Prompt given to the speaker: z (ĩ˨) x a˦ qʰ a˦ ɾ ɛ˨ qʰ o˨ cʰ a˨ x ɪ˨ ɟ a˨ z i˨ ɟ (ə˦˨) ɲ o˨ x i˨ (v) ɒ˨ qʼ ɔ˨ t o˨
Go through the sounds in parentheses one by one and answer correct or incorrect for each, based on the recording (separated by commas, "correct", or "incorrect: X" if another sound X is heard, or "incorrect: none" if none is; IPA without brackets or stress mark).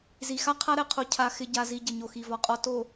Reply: incorrect: i˨, incorrect: ə˨, correct